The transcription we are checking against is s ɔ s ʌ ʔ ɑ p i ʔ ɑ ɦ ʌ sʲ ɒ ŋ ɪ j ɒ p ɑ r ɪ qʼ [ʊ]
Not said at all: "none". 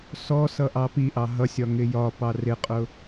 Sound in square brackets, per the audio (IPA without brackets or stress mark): ʊ